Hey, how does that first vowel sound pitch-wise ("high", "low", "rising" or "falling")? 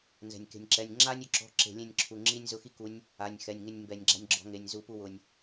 low